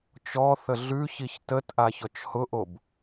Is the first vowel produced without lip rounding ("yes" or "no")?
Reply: no